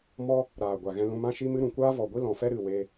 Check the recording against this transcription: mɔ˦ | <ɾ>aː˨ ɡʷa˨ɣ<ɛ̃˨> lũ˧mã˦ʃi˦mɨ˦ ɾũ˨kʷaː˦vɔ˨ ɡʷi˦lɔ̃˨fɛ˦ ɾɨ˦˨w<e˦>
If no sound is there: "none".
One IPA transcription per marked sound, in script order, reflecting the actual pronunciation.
ɾ, ɛ̃˧, e˦

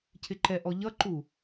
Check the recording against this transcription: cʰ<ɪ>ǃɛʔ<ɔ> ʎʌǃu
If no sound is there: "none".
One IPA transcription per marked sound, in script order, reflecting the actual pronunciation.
ɪ, ɔ

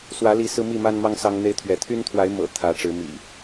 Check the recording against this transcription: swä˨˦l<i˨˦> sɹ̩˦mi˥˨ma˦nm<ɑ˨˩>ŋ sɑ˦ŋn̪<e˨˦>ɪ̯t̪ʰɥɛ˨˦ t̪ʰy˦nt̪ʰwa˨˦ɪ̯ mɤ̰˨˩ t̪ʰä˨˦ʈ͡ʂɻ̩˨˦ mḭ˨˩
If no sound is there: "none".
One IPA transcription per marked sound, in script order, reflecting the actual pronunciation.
i˨˦, ɑ˦, e˦

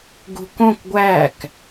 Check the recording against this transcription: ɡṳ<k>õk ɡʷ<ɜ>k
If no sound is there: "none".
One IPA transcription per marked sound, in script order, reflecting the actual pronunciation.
k, æ

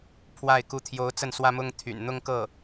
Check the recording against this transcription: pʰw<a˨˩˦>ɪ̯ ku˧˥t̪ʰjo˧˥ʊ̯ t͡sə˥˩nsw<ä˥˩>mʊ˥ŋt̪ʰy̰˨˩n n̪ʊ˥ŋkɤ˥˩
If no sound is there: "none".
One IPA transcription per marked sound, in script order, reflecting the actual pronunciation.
a˥˩, ä˥

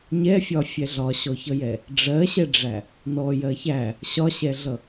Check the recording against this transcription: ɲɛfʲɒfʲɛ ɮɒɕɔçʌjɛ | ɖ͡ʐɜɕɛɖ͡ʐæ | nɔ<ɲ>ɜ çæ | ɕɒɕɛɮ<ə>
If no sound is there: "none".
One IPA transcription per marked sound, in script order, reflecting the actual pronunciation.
j, ʌ

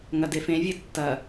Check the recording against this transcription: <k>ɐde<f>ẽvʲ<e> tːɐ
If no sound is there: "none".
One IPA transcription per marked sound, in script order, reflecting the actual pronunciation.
ŋ, f, ɨ

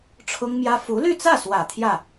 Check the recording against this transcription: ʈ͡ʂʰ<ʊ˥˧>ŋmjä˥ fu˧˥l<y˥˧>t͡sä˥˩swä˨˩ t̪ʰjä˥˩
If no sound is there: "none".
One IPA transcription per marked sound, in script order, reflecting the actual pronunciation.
ʊ˥, y˥˧

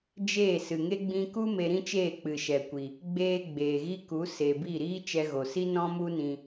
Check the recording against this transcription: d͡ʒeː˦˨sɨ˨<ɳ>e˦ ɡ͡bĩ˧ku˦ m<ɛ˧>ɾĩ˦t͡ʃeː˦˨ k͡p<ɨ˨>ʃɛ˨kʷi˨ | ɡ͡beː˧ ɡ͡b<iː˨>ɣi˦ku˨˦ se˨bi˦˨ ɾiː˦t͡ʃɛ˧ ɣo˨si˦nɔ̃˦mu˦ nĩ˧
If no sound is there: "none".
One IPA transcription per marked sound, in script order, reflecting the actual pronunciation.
ŋ, e˧, ɨ˨, eː˨

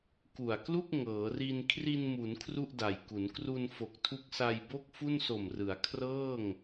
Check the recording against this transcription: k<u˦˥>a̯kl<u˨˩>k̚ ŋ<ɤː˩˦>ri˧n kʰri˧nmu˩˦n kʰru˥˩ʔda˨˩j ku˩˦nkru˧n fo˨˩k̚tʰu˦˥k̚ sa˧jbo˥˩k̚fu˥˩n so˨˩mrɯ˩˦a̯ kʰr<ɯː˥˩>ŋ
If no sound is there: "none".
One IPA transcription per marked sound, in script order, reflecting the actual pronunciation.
u˨˩, u˥˩, ɤː˩˦, ɤː˥˩

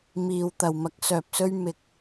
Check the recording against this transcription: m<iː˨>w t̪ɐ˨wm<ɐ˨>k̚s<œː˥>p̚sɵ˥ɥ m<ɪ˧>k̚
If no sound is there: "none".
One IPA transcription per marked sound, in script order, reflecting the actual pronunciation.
iː˨, ɐ˨˥, œː˨, ɪ˧

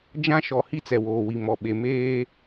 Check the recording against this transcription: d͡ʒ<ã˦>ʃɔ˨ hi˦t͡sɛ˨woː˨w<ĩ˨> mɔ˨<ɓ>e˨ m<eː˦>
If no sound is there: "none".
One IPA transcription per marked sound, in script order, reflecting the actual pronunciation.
ã˦, i˨, ɓ, eː˦

